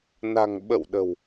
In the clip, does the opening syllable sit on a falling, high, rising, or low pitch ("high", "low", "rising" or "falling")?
low